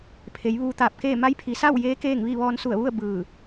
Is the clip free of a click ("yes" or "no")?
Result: yes